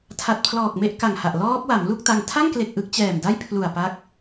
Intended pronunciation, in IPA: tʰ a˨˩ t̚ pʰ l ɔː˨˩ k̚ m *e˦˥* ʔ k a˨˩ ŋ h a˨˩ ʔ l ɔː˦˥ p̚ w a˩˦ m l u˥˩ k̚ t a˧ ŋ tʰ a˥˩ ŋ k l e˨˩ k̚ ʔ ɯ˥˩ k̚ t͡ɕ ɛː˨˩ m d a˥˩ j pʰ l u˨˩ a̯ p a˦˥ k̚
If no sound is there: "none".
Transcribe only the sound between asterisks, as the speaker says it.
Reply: e˥˩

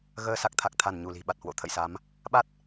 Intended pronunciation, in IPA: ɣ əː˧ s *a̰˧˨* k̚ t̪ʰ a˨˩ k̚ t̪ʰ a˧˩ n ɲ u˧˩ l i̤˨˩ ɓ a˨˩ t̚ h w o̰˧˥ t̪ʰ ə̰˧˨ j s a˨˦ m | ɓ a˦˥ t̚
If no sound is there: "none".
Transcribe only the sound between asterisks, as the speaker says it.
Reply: a˨˩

